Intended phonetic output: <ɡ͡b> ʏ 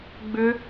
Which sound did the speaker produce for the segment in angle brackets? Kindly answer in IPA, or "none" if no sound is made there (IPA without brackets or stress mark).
ɡ͡b